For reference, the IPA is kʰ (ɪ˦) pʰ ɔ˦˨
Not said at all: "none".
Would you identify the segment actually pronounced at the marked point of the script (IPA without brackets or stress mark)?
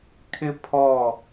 ɪ˦